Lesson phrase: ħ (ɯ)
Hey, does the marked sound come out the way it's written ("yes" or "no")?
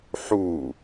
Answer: no